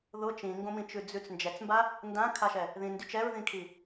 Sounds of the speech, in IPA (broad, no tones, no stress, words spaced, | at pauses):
ðʊ t͡ʃĩŋɡõmĩt͡ʃʉ d͡zʉt͡s nd͡ʒɛt͡smba | ndãkʰaʃɛ | ðĩndy t͡ʃɛɹðĩkʰi